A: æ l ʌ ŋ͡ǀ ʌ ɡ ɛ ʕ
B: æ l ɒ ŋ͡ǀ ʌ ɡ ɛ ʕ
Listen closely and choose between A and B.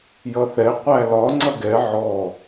B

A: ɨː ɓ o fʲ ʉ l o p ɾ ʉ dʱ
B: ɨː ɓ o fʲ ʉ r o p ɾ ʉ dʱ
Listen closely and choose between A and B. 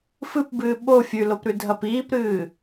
A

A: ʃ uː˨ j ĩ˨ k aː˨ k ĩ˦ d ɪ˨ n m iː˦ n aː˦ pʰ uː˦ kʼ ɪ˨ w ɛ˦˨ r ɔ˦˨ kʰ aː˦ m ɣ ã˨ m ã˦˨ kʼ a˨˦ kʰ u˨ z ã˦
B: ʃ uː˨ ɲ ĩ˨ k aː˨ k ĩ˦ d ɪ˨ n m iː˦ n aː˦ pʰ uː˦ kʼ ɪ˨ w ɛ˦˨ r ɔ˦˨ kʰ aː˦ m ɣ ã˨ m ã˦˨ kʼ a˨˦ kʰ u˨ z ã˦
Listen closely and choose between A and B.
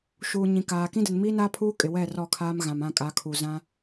B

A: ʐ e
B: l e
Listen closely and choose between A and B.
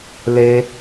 B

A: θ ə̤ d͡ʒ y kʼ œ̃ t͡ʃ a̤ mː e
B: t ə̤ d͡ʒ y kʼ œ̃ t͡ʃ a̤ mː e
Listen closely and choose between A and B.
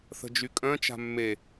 A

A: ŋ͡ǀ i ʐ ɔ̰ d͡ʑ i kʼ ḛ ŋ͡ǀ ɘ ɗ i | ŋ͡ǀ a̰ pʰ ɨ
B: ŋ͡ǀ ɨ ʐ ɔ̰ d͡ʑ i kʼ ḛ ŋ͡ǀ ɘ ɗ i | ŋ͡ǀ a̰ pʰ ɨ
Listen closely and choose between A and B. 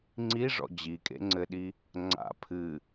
A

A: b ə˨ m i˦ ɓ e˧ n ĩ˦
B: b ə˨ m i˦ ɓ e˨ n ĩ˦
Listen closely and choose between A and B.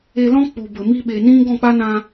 B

